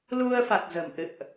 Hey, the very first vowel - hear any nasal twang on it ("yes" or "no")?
no